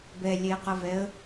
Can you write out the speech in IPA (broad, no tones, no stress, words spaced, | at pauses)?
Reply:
bɛlʲeqʌvɛə̯